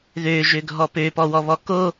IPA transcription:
ð ø ʒ ø ɡʱ ɔ p ø p ɔ w ɔ β ɔ k o

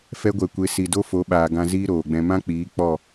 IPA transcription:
f ɛ˧ ɡʷ ɛ˨ kʷ e˨ s i˨ d o˦ f o˨˦ ɓ aː˨ ɡ ã˧ z iː˦ ɾ oː˨ ɡ͡b ɛ̃˧ m ã˦ k͡p iː˨˦ k͡p ɔ˦˨

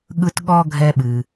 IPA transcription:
ɠ ɯ˦ t ɠ ɔ˥ ɡʱ ɛ˦ ɓ ɨ˩

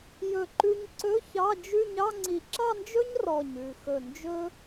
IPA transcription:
j ɵ˧˩ ǃ ʉ˧ ɲ ǀ ɵ˧˥˧ ç ɑ˧˥˧ d͡ʒ ʉ˥˧ ɲ ɑ˥˧ ŋ͡ǀ i˧˩ ǁ ɑ˥˧ n d͡ʒ ɵ˥ ɲ r ɔ˧˩ ɲ ʉ˧˩ x ɵ˧˩ n d͡ʒ ɵ˥

